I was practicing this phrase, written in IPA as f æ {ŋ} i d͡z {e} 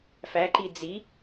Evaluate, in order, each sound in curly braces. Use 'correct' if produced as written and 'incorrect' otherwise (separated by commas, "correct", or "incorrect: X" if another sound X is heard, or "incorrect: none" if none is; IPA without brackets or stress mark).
incorrect: ǃ, incorrect: i